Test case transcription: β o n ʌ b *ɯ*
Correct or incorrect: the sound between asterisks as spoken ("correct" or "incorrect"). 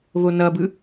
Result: correct